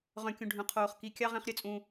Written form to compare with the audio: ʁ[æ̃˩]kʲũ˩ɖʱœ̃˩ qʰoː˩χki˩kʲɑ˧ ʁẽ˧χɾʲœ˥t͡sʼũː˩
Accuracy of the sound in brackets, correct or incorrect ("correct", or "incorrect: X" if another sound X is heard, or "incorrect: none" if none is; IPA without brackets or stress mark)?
incorrect: œ̃˩